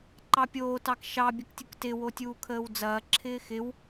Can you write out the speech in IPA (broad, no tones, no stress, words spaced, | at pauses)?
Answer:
ǃɑpʲoː tɑkʃɑ bʲəktʲʊktɪ wotʲuːkʰəːwd͡zɐː ǁʰɪːxɪw